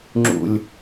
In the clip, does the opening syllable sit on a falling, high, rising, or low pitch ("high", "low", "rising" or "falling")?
low